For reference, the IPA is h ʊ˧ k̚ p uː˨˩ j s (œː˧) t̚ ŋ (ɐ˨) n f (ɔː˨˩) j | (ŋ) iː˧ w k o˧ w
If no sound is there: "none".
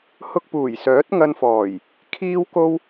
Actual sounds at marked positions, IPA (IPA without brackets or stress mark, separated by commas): œː˨˥, ɐ˧, ɔː˨˩, kʰ